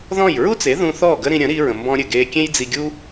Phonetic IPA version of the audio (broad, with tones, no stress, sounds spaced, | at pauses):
ð ɔ̃˥˩ j ɹ u˥ t͡s e˩˥ ð ũ˧ θ ɔː˥˩ ɡ ə˥ ɾ ĩ˧ ɾʲ ə̃˩˥ ɾ i˧ ɹ ə̃˩ m b ɔ̃˧ ɾʲ ɘ˩ ɡ eː˧ kʲ ẽ˥ j d͡z i˧ ɡʲ u˥